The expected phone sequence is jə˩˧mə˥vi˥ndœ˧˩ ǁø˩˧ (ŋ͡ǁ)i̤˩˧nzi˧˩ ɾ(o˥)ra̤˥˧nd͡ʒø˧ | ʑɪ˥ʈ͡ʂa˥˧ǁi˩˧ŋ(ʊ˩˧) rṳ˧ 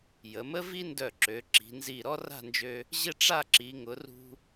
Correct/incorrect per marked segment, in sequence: incorrect, incorrect, correct

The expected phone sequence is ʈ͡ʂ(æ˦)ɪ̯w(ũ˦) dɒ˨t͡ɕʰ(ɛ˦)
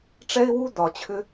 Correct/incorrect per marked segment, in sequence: incorrect, incorrect, incorrect

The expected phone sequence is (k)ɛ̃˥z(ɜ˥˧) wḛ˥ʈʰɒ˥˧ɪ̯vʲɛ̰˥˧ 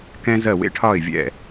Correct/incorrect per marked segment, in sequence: correct, correct

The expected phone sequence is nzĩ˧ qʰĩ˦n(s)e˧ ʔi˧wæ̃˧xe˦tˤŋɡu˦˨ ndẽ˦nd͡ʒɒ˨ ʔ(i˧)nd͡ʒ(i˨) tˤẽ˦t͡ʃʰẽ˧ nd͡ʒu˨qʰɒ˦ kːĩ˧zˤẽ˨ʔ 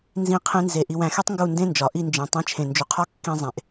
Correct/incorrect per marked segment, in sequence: incorrect, correct, incorrect

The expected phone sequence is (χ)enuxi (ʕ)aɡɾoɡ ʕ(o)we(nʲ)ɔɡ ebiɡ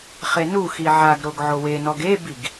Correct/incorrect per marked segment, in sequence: correct, correct, correct, incorrect

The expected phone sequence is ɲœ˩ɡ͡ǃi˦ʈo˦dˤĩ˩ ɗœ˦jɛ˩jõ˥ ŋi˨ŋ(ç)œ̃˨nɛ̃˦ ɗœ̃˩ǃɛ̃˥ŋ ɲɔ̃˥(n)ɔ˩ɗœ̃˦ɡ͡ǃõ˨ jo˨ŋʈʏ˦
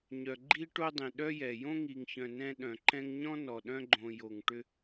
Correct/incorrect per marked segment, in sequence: correct, correct

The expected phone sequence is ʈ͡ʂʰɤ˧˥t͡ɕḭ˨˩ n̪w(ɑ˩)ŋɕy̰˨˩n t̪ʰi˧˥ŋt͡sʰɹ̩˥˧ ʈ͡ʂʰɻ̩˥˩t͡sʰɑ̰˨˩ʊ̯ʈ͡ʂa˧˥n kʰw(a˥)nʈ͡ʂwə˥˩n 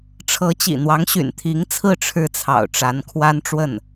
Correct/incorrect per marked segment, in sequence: incorrect, correct

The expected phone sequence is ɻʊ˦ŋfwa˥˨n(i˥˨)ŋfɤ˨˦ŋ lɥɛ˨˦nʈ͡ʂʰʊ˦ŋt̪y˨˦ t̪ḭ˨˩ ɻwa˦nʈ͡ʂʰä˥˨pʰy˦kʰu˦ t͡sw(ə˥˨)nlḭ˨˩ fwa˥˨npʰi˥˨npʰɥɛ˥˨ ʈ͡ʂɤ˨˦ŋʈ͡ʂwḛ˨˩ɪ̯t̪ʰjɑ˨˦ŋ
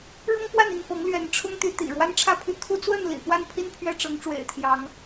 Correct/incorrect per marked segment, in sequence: correct, correct

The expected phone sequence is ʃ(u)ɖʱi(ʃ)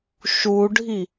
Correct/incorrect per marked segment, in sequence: correct, incorrect

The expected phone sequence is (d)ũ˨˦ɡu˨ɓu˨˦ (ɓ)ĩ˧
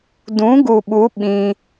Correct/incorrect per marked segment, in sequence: correct, correct

